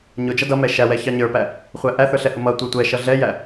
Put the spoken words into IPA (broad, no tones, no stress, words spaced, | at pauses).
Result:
ɲʊd͡ʒʌ dʌmɛ ʃæwɛ çɑɲə˞pæ | χʷæʔæθə˞ ɬɛhʊmʌtʷə˞ tʷɛʃʌ ɮɛjæ